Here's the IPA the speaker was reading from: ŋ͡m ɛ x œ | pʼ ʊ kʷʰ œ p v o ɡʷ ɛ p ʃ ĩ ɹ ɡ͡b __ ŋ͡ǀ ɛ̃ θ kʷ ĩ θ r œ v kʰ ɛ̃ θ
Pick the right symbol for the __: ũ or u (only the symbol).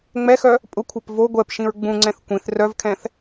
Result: ũ